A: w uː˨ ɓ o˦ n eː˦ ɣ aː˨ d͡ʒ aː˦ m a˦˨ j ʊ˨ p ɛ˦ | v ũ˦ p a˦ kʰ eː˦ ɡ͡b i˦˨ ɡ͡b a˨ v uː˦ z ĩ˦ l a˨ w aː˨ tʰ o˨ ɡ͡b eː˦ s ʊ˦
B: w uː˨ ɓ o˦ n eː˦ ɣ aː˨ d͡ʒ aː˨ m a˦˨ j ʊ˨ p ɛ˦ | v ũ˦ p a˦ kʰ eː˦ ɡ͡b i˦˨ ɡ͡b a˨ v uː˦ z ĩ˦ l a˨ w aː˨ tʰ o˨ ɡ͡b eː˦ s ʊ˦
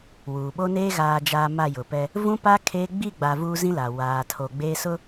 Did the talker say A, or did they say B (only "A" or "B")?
B